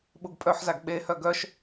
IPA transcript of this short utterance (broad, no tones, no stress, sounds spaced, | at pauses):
ɓ u ɡ pʼ œ ħ z a ɡ ɓ e h œ ɡ œ ʃ